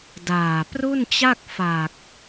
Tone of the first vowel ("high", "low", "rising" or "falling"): low